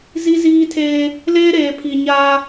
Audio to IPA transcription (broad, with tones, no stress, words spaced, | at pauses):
zi˦ziː˦tʰeː˦ | leː˦ɾeː˨pʰi˨ɲaː˦